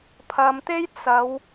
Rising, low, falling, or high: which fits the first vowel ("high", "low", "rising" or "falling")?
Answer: low